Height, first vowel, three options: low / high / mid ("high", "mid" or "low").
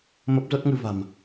mid